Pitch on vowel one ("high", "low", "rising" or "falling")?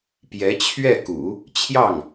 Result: rising